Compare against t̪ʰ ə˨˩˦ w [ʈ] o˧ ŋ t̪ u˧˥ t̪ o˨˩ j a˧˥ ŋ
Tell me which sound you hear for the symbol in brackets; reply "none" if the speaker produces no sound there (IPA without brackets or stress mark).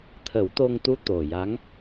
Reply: t̪